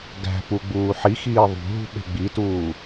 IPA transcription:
ɡ æ̤ p u ɡ͡b uː ħ i x iː ðˤ ṳ ɦ ṳ ɓ e̤ ɡ͡b i t uː

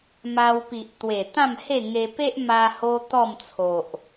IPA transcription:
m a˧ w p i˨ ʔ t̪ w e˨˩ t̪ ã˥˧ m h e˥˧ ŋ e˧ p e˦ ʔ m a˧ h o˦ t̪ ɔ˥˧ m t͡sʰ o˨ ʔ

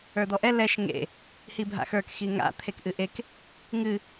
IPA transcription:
ə˞ d̪ ɔ ʔ ɛ l ɛ ʃ ŋ ḛ | h i bʱ a̰ x ə˞ k x i ŋ a̰ t̪ʰ e k ʔ ɨ ʔ e k | ŋ ɨ

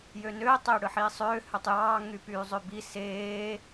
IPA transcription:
j ø n øː tˤ eː ɽ ɯ ħ iː sˤ øː h ø tˤ j ɑː ŋ y p yː zˤ ø b i s eː

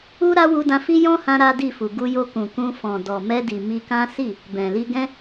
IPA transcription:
u˦ ɾ a˦ w u˧ d ã˧ f i˦ j ɔ̃˦ h ã˧ ɾ a˦ d i˦˨ f u˨ ɡ u˧ j o˧ k ũ˨ k ũ˧ f ɔ̃˨ d ɔ˨ m ɛ˧ d i˨ m i˧ k ã˦ s i˦˨ | b ɛ̃˨ l i˧ ɡ ɛ̃˦

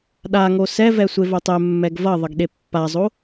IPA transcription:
ɗ a ŋ o s ɛ v ɛ sʷ e v o tˤ ɛ mː ɛ ɡ v ʌ ðˤ ʌ ɡ ɗ e pː a zˤ o

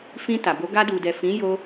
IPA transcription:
f ĩ˧ t a˨ b o˨˦ ɡ a˧ d u˨ d ɛ˨ f ĩ˨˦ j o˧

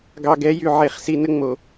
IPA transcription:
ɡ ɑ˨ ɡ ɛ˨˦ j y˨ ʕ e˨˦ χ s i˨ n ə˦ ŋ͡m o˨

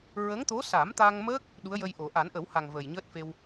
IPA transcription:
ɹ ə˧˥ ŋ t̪ o˧˥ s a˨˩˦ m t̪ a˧ ŋ m əː˦˥ k̚ | ɗ u˧˥ ə̯ j ə˧ j ʔ o˨˩˦ ʔ a˨˩˦ n ʔ ə˨˩˦ w h a˨˩ ŋ v ə˨˩ j ɲ əː˦˥ t̚ f e˧ w

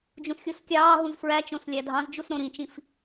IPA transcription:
d͡ʒ ũ s xʲ u s kʲ ɑː ɦ ũ z f ɹ æ t͡ʃ õ s lʲ æ dʱ ɑ̃ z d͡ʒ u s ɾ õ ɾ ĩ t͡ʃ ĩ f

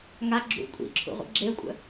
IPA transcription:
ŋ a ɡ͡ǁ ṵ kʷʼ ḭ ǁʰ ṵ ʁʷ ə̰ ɡ͡ǁ e ə̯ kʷʼ ə̰

